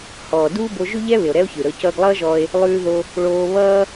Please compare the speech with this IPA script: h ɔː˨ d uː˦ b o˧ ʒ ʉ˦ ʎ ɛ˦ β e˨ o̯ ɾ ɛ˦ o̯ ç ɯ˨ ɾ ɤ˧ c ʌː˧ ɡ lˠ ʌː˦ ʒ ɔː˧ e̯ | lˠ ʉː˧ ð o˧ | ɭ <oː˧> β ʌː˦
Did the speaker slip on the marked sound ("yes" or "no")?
no